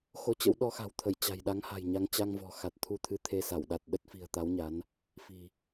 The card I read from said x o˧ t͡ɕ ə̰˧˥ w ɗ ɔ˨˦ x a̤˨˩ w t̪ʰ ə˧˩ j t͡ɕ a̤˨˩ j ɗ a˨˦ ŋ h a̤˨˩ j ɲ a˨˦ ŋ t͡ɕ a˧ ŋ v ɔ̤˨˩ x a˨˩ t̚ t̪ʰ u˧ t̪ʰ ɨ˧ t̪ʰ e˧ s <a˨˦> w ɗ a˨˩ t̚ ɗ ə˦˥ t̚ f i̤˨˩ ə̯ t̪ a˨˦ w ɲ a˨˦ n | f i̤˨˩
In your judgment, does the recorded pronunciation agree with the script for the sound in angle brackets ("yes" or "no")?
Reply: no